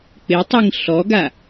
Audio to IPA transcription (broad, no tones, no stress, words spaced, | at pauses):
k͡pɪtˤiŋ ɬɔɡa